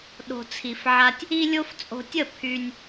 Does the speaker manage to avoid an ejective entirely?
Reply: no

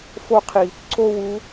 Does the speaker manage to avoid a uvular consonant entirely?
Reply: no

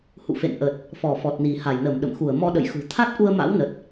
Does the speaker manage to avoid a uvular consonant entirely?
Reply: yes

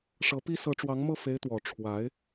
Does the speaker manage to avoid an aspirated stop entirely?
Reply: no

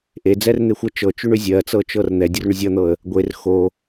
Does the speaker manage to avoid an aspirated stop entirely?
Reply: yes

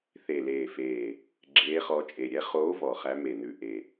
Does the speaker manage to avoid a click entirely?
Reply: no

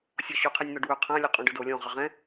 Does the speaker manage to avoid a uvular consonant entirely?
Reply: no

